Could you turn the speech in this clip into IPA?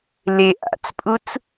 l ɪ ʔ a̰ t͡s pʼ u t͡s

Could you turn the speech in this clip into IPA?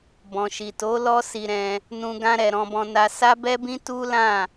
b ɔ̃˨ ʃ i˨ t o˨˦ l ɔ˦ s i˧ ɾ ɛ̃˧ | n ũ˧ ɡ ã˦ ɾ ɛ˧ ɾ ɔ̃˧ b ɔ̃˧ n a˧ s a˦ b ɛ˦ b ĩ˦ t u˦ l ã˦˨

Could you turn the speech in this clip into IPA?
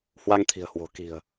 h w a˧ ŋ t̪ʰ i̤˨˩ ə̯ h w o̤˨˩ k i̤˨˩ ə̯

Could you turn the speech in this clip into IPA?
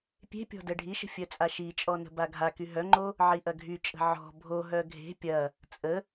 pʲ e̤ pʲ ɔ̤ d ɛ ɖʱ i ʃ ə̤ fʲ œ t͡sʼ a ʃ i t͡ʃʼ ɔ n ə̤ b a ɡʱ a k y ɦ œ ŋ͡ǃ o | ʕ i ʔ ɐ ɡʱ y t͡ʃʼ ə̤ ʕ ɔ̤ bʱ o ɦ œ ɡʱ e̤ pʲ ɐ | t͡sʼ ə

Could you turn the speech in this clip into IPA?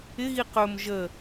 ɪ ɣ i q ɵ m ʒ ə

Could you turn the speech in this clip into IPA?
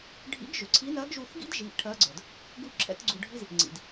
ɖʱ ḭ˧˥ ɡ ʒ ʏ˩ ǀʰ i˧˥ n ɜ˧˥ ɡ ʒ u˧ θ ɡ ḭ˥ d ʒ i˩˧ ʔ ʈʰ ɜ˧˥ ɡ͡ǀ ə˞˩ d | ɡ u˥ ǁʰ ɛ̰˧˥ t ɡ͡ǀ u˧ ɖʱ i˥ z | ŋ͡ǀ ḭ˩ d

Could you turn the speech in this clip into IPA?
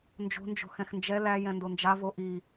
n d͡ʒ o̤ n d͡ʒ o̤ x ɛ̃ x n d͡ʒ ɛ l æ j ɛ̃ n d o n d͡ʒ a v o ʔ i

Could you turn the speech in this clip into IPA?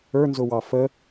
ə˞ n z ʊ w ɑ f ə

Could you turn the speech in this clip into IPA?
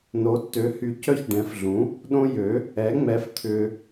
n o˩˥ tː ø˩˥ h y˨ c œ˦ ç ɖ ɛ̃˩˥ f ɮ ũ˩˥ | ɗ õ˦ j ø˩˥ | ɛ˩˥ ŋ͡m ɛ˩˥ f t̪ʰ ʏː˨

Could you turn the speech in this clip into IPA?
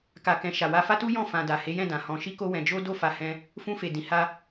k a˨ k ɛ̃˨ ʃ a˨ w a˧ f a˦ t u˦ j ɔ̃˦˨ f ã˧ d a˨ h e˨˦ j ɛ̃˦˨ d ã˨ h ɔ̃˧ ʃ i˦ k o˦ w ɛ̃˧ d͡ʒ o˦ d o˦˨ f a˧ h ɛ̃˧ | f ũ˧ f e˨ d ĩ˨ h a˧

